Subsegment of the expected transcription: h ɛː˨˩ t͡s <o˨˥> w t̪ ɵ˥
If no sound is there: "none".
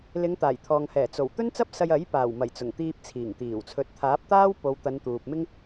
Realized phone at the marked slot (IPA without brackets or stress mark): o˨˩